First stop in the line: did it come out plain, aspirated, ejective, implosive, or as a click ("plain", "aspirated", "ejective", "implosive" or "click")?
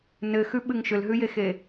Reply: implosive